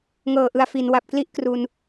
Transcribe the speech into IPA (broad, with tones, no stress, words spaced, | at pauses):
ŋɤː˨˩ʔɯ˨˩a̯ fi˩˦n wa˨˩p̚kli˦˥ʔ kru˧n